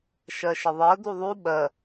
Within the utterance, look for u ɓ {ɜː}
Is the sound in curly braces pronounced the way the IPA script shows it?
no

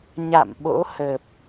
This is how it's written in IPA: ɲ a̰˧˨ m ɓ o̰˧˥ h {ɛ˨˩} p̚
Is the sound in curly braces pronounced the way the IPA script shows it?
no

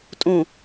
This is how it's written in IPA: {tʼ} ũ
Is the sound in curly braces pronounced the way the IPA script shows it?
yes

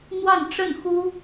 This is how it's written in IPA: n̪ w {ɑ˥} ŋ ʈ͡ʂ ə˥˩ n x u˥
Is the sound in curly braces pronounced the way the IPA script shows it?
no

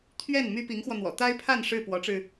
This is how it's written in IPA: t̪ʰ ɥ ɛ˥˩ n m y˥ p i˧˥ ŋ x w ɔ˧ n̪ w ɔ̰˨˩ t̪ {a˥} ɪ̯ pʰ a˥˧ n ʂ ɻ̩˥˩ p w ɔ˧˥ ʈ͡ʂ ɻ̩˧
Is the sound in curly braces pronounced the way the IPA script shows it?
yes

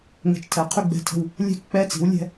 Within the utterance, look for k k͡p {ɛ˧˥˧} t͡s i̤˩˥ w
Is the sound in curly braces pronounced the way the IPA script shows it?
yes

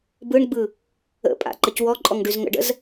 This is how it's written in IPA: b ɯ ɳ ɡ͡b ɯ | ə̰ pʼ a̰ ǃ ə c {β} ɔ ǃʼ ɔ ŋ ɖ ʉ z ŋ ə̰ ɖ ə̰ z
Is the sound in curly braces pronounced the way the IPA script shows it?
no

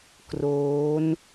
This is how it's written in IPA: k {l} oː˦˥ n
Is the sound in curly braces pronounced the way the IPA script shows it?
no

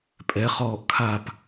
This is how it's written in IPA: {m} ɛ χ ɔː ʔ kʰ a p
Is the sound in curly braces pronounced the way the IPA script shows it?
no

